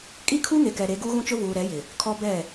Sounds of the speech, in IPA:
kʼi˦kʰu˦ŋe˨kɛ˨ ɾe˨˦ɡu˦ɣũ˦t͡ʃʊ˦ vuː˨ɾɛ˨˦jɪ˨ | kʰɔ˦ bɛ˦˨

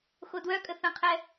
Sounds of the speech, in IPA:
xodwœkʼə θə̃qʰɛ

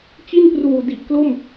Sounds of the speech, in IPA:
t͡ɕi˥˩npruː˨˩ di˨˩ʔklo˥˩m

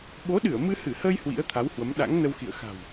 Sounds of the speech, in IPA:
ɓo˨˦ɗɨ˧˩ə̯ mɨ˧hɨ˧˩həː˧j hwḭ˧˥ə̯t̪ʰa˨˦whwə˨˦m ɗa̰˧˥ŋnə˧wxḭ˧˨ə̯ xa̤˨˩w

